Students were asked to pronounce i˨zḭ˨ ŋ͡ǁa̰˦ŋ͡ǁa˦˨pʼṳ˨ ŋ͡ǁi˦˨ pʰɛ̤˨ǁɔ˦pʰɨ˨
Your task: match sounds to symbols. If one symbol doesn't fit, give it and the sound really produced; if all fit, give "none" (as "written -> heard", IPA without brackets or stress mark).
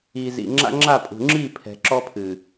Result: none